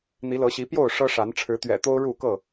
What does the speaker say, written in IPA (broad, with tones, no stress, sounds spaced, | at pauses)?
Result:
n̪ i˨˦ l ɤ˨˦ ɕ i˨˦ p j o˥˨ ʊ̯ ʂ ɤ˦ ʂ a˨˦ n ʈ͡ʂʰ ɻ̩˨˦ t̪ ɥ ɛ̰˨˩ t̪ o˦ ʊ̯ ɻ u˥˨ k ɤ˥˨